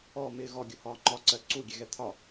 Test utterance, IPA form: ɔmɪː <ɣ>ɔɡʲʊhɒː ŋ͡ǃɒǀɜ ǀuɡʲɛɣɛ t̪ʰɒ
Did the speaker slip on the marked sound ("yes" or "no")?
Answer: no